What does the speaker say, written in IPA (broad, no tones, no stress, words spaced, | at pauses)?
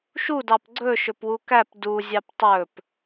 ʃudɑp ɡ͡ǀɵʃɵpwu kæp duzʲɑp tˤɵp